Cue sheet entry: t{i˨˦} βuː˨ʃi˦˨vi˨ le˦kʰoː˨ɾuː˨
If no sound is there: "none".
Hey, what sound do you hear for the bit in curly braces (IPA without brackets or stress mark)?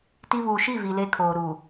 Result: i˦